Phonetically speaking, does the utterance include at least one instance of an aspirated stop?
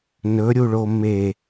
no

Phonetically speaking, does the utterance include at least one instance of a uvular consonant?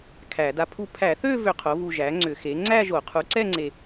yes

